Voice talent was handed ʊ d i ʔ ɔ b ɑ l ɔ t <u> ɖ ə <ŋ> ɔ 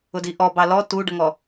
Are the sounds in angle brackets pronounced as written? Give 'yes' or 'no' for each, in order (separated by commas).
yes, yes